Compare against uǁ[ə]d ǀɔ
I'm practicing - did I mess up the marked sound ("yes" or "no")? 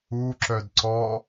yes